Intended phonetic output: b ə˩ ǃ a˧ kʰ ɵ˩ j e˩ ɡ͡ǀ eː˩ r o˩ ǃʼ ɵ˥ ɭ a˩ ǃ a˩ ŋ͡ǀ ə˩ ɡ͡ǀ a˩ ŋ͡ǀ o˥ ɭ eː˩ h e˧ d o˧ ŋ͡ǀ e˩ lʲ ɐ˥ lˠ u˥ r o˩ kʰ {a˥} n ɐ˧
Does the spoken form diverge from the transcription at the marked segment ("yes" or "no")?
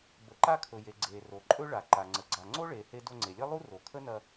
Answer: yes